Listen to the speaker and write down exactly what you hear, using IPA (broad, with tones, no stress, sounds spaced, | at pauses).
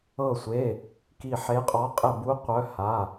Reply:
ɤ˧˩ sʷ e˩˧˩ | k i˧˩ ħ e˨˦ qʼ ɔ˨˦ qʼ e˧˩ b u˨˦ qʷ œ˨˦ h a˩˧˩